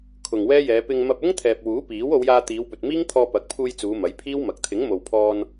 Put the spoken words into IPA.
kʰ ʊ˨ ŋ w ɛː˥ j ɛː˨˧ p ɪ˧ ŋ m ɐ˧ p̚ ʊ˥ ŋ t̪ʰ ɛː˨ p̚ w uː˨˥ p iː˨˥ w o˨˧ w j aː˧ t̪ iː˨˧ w p ɵ˨ t̚ m iː˥ ŋ t̪ʰ ɔː˧ p ɐ˨˥ k̚ pʰ uː˧ j t͡s uː˨˧ m ɐ˨˥ j pʰ iː˥ w m ɐ˨˥ k̚ t̪ʰ ɪ˨˥ ŋ m o˨ w pʰ ɔː˧ n

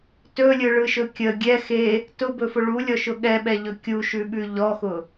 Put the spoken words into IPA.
t ɵ lʲ ɯ ɭ ɯ ʃ ɵ kʲ ə ɡʲ ɛ x e | t ʊ b ɵ f ʊ ɭ u lʲ ɔ ʃ ʊ ɠ ɛ ɓ ɛ ʎ ɵ kʲ u ʃ ʉ ɓ ʉ ʎ ɔ x ʊ

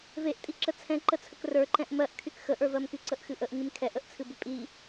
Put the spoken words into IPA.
v e ʔ tʼ i ǁ ə t͡sʰ ɛ̃ ǃ ə t͡sʰ ə k r ə˞ ǃ ɛ̃ ʔ m ɜ ʔ kʰ y k x ə ʔ ə˞ v ɜ m k y ǀ ə ʔ x ɨ ʔ ə ʔ ŋ ĩ m kʰ ɛ ʔ ə ʔ t͡sʰ ɨ b y pʼ i

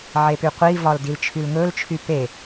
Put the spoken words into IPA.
ʕ e p y qʷ i v ɒ l d i l t͡ʃʰ y l ŋ ɵ l t͡ʃʰ y p e

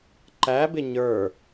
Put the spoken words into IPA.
ǃ æ b ɪ ɲ ə˞

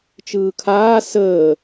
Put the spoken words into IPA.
t͡ʃ ɯː kʰ aː s əː

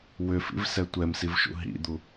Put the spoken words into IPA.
w ʏ f ḭ v s ɛ tʷ ɛ m s i v ʃ ṵ ɦ ḭ d̪ u

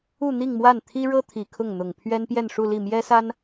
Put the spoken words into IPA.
u˥˧ n̪ i˥˧ ŋ m w a˥˩ n t̪ʰ i˥ ɻ ɤ˥ t̪ʰ i˨˩ kʰ ʊ˥˩ ŋ n̪ ʊ˨˩ ŋ pʰ ɥ ɛ˥ n p j ɛ˥˧ n ʂ u˥˧ l i˥˩ m j ɛ˥ s a˥ n

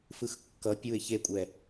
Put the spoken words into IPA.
f ɯ x kː ʌ pʲ u ɪ̯ ç e kʷʼ ɛ

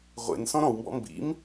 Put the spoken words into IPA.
ʁʷ ḛ n s ɔ̃ ɾ ɔ̃ w m b ɔ̰ m b ḭ m

